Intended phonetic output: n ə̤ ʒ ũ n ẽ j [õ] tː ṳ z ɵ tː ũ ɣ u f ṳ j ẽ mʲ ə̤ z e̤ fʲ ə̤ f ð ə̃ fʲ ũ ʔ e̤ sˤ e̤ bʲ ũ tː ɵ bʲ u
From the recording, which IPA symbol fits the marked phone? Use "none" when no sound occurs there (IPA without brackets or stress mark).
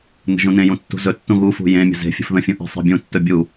ũ